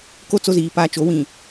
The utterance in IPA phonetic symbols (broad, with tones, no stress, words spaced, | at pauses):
ko˦˨ t͡so˦ziː˨pa˦ t͡ʃo˨˦wĩ˨